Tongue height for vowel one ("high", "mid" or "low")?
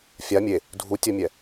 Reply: low